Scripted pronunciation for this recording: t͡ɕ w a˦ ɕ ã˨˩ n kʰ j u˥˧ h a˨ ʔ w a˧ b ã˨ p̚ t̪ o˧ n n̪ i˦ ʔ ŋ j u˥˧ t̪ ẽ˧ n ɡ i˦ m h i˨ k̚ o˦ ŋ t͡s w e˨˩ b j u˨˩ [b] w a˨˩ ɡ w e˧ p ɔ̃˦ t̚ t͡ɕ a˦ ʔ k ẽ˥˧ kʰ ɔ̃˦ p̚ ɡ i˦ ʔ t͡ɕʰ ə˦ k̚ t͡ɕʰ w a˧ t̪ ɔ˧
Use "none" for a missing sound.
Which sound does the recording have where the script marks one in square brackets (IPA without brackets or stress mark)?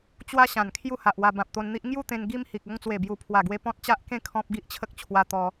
pʰ